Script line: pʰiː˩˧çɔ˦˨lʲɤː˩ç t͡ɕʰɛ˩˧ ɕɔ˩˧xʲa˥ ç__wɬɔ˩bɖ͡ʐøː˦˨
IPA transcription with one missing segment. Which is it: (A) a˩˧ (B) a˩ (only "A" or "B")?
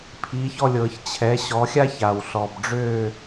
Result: B